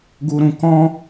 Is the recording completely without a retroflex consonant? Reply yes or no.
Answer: yes